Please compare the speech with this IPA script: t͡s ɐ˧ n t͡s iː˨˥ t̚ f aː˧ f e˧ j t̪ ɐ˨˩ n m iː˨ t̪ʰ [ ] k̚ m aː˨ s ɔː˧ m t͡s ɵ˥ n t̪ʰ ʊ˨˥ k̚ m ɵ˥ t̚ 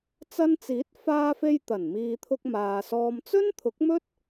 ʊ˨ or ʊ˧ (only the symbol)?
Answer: ʊ˧